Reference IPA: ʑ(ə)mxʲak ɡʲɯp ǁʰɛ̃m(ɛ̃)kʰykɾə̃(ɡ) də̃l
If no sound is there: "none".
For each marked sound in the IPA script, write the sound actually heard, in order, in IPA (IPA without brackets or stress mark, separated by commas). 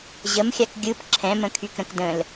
ə, ə̃, k